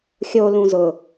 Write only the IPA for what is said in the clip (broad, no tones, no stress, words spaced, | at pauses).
xʲo lũzʊ